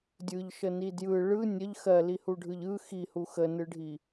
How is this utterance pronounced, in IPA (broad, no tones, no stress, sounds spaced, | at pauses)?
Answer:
dʲ ɯ ʎ ʃ ə n i d j ɯ ɭ ɯ nʲ ə ʎ x ɜ l i h u ɖʱ ɯ ʎ ɯ x i h u x ə n ɯ ɖʱ i